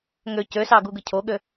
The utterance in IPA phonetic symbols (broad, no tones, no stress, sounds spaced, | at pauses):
ŋ ø c ø s ɑ ɡ u ɡ ɯ cʰ o ɠ ø